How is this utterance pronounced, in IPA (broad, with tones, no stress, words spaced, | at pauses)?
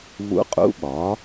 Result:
vṵ˧˥qʼṵ˧˥ɓɒ˩˥